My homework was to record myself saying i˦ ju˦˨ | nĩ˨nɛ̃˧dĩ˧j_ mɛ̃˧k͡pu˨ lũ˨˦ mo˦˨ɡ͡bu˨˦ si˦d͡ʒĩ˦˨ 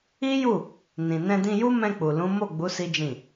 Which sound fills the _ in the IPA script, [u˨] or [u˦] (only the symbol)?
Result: u˦